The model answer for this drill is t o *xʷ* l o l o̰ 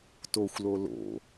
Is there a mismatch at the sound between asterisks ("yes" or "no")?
no